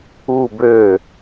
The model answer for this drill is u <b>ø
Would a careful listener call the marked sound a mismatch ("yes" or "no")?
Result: no